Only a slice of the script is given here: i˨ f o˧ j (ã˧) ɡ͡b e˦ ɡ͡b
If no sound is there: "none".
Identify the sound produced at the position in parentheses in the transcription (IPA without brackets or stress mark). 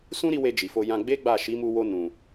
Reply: ã˧